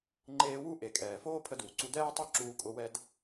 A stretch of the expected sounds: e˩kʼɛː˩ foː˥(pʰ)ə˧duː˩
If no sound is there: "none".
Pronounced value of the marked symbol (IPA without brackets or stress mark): pʰ